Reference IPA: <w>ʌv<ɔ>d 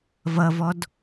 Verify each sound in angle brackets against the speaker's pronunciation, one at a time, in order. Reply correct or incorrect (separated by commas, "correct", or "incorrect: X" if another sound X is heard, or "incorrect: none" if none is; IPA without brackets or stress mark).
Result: incorrect: v, correct